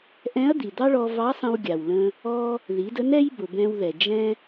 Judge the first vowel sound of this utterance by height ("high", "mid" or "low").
mid